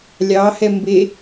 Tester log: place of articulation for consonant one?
alveolar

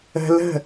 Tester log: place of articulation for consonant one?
alveolar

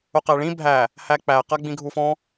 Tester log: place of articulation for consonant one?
uvular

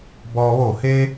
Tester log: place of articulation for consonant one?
labial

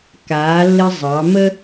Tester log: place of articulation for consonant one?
velar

